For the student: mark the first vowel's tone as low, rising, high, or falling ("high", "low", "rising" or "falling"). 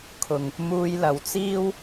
low